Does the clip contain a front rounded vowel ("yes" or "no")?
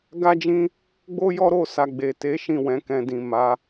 no